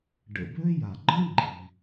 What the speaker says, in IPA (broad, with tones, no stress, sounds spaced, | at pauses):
ɖ ə̰˩ b ø˥ j a˩ ɡ͡ǃ ə̃˥ ɡ͡ǃ i˩